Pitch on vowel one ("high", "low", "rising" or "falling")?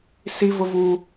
high